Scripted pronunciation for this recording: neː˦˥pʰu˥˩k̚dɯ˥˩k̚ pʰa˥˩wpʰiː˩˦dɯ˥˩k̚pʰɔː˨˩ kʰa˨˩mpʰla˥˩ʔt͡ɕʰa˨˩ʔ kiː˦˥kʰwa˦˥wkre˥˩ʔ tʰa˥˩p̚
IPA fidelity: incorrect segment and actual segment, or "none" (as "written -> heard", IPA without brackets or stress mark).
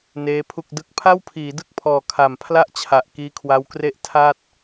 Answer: p̚ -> t̚